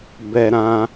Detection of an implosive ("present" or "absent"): absent